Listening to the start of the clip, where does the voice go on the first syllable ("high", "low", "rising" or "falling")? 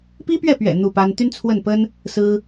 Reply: high